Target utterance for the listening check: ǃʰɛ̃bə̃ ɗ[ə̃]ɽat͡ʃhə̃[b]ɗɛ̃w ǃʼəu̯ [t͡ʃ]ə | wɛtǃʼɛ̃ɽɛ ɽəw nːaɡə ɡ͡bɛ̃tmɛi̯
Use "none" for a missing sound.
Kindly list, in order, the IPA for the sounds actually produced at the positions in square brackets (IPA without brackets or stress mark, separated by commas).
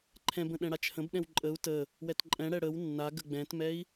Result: ɛ̃, b, t